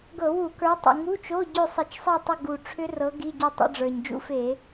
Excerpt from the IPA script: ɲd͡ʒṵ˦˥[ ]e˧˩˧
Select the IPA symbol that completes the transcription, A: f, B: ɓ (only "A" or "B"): A